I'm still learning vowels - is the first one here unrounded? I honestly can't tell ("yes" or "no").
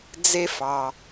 yes